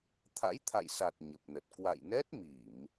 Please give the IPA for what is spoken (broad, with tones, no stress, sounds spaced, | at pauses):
t̪ʰ a̰˧˥ j t̪ʰ a̰˧˨ j s a˨˩ t̚ ɲ ə˨˩ p̚ n ə˨˩ t̚ k w a̰˧˨ j n ɛ˦˥ t̚ m i˧˩˨ m